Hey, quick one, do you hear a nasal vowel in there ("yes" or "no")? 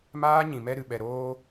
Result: yes